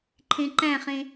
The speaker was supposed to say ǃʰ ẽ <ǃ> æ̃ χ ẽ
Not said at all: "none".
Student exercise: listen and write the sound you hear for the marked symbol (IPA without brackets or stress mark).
ǃ